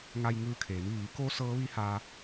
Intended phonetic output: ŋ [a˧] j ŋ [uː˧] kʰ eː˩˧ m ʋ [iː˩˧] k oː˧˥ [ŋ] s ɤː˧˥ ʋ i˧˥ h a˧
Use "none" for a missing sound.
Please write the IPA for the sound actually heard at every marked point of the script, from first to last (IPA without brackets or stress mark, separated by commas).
a˧, ɯː˧, iː˩˧, none